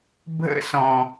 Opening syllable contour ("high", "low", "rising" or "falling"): high